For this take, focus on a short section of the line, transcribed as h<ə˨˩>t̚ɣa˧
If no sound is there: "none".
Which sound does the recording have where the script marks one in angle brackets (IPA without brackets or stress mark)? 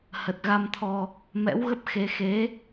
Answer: ə˨˩